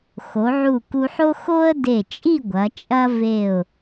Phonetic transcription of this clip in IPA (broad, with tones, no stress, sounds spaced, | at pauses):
x o˩˧ ʕ u˧˩ k u˧ ħ o˥ x o˥ ə̯ d e˧˩ t͡ʃʼ i˥˧ ɡʷ ɐ˩˧ t͡ʃʼ ɐ˥ v e˧˩ ʊ̯